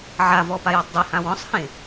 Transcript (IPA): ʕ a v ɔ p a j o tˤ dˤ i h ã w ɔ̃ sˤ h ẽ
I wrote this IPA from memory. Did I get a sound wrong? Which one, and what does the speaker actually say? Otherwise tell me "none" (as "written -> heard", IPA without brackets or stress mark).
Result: o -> ɔ